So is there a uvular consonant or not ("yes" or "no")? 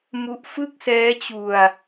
no